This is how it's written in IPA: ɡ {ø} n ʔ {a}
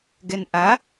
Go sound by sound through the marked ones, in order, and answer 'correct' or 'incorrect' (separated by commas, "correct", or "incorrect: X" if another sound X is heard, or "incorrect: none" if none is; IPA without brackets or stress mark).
incorrect: ɛ, correct